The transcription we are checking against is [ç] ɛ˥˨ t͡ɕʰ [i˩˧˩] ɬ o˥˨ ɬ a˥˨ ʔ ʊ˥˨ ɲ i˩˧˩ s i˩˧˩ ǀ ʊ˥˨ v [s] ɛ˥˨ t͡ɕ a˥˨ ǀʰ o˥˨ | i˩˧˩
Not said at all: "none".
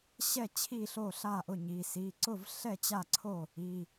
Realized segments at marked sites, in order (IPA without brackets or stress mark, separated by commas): ɕ, i˥˨, ɬ